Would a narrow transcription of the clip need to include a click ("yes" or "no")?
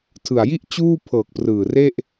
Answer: no